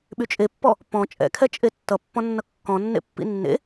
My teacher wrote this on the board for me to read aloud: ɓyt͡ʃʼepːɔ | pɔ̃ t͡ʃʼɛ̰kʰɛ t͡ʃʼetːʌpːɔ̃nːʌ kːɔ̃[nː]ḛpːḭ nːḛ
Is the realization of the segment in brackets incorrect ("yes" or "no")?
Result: no